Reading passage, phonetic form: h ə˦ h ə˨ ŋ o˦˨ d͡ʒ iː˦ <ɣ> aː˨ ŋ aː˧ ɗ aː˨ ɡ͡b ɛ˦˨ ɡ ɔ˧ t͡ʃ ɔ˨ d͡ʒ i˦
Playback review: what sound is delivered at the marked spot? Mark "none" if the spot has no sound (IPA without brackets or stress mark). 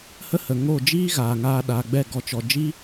ɣ